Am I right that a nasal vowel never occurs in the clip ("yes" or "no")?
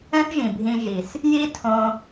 no